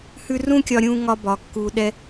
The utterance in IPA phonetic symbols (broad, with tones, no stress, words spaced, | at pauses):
hʉ˦ rũ˦kʲɒ˧ɾʲũ˧ ŋɒ˦bɒ˨˦kːu˧ ɗɛ˧